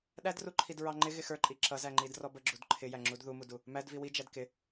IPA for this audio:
ɗædruǃʰid ɹɑŋ͡ǃɪɣɪ xə˞ǃʼi ǁʌzæŋ͡ǃid rɔbəɡ͡ǁud ǃʰɪjæ ŋ͡ǁudðumudu | mæd viwi d͡ʒædkɪ

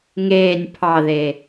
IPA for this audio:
ŋeːnʲ pʰɑðe

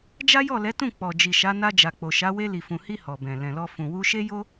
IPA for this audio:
d͡ʒa˦jɔ˦˨lɛ˨˦tũ˦˨ k͡pɔ˨ d͡ʒi˨ʃa˨˦ na˧d͡ʒa˨k͡po˨ʃa˨˦ we˧li˨fũ˨hi˧ hɔ˨bɛ̃˨ lɛ̃˨lɔ˧ fũ˨wu˧ʃe˦jo˦

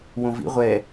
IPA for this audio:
wõvḭ ʁʷɛ

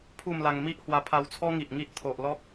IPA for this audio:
pʰu˥˧mla˧ŋ mi˦ʔhwa˧pʰa˧wt͡sʰɔ˦ ŋi˨ʔŋi˦ʔ t̪ʰo˨ʔlɔ˦k̚

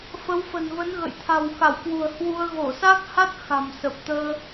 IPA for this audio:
fə˨˦wfə̤˨˩nvə˨˦nɣə̰˧˨j t̪ʰa̤˨˩wxa˧˩wkwṳ˨˩ə̯ hwu˧ə̯ ɣo˧˩sa˦˥k̚ha˦˥t̚ xa̤˨˩msə˨˩p̚ t̪əː˧

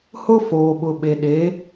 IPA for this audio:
hʊ˦ foː˨ɓʊ˨ ɓe˨ɗe˨˦

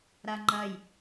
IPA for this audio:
ɾaŋ͡ǃɐj

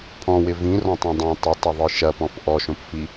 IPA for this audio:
pʰɔ̃wɪ vĩrɔ̃tˤõ dˤẽ tˤɪtˤɪðˤɯ ʃɐpɔ̃f ʔɔʃõpfi

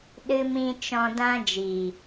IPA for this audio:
ɗɨ˦mĩ˦ t͡ʃɔ̃˧dã˦ d͡ʒiː˨

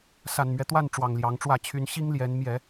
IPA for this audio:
sa˨˩nmɥɛ˦ t̪wa˥˨n ʈ͡ʂwɑ˨˩ŋljɑ˨˦ŋʈ͡ʂwä˥˨ t͡ɕʰy˨˦nɕi˦ŋljɛ˨˦n mjɛ˨˦

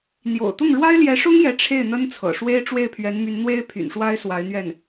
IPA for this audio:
n̪jo̰˨˩ʊ̯t̪ʊ˥˩ŋ ɻwa˥ɪ̯ljɛ˧˥ʂʊ˥ŋ jɛ˧˥ ʈ͡ʂʰe˥˩ɪ̯n̪ə˥nt͡sʰɤ̰˨˩ ʂwe˥ɪ̯ ʈ͡ʂwe˥˩ɪ̯pʰɥɛ˧˥nmy˧˥n n̪we˥ɪ̯pʰy̰˨˩nʂwa˥ɪ̯ swa˧˥ɪ̯n̪ɥɛ˥˩n

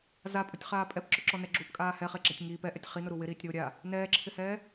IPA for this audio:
zapʼʊtʲχaː pʼɛpǁʊǁɔnɛ ɡ͡ǁupkʼaː hɛχeɡ͡ǁatʲ ŋiːp ɛʔɛtʲ χinʊɾu wɪɾiːtʲɾoː ɾʲa | nɛːǁʰɪhɛː

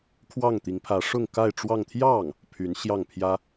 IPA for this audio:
kʰwɑ˥˩ŋt̪i˧˥ŋpʰä˧˥ ʂʊ˥˧ŋka˥˧ɪ̯ ʈ͡ʂwɑ˥˧ŋ t̪ʰjɑ˥˩ŋ | pʰy˧˥nɕjɑ˥˩ŋpʰjä˥

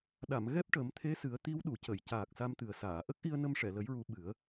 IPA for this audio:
ɗa˨˩˨m ɣɛ˦˥p̚ʈə˨˩˦mt̪ʰe˧˥sɨ˨˩˦ə̯ t̪i˧˥wɗu˨˩˨cə˨˩˨j caː˨˩k̚sa˧mt̪ɨ˨˩ə̯saː˨˩˨ ʔə˦˥k̚ʔi˧ə̯ nə˧mʂɛ˨˩˨lə˨˩˦jɹu˨˩˦ ɓɨ˨˩˦ə̯

